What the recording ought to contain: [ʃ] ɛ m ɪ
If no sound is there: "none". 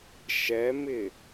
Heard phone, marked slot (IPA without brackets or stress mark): ʃ